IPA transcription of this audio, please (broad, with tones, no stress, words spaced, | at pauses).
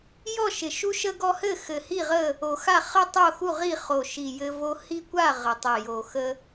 jɔ˥˨ʃɪ˨˩ ʃu˦ʃə˦ɡɔ˦hɘ˥˨ xɘ˨˩hi˥˨ʁə˥˨ | o˨˩xa˥˨ χə˥˨tˤo˥˨xu˥˨ʁi˥˨ χo˨˩ʃi˨˩ jɘ˦vo˦ hi˦kʷa˥˨ ʁɘ˨˩tˤɪ˨˩jo˨˩xə˦